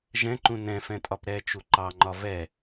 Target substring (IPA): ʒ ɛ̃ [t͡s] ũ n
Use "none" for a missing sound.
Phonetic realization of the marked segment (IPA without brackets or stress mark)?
ǃ